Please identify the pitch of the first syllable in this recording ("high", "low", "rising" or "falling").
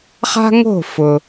high